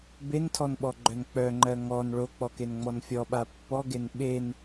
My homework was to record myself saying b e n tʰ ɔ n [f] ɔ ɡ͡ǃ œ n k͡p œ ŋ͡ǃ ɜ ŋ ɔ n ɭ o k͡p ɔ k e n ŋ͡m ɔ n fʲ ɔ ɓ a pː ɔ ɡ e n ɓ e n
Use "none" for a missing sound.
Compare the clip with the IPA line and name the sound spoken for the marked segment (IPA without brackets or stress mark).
ɓ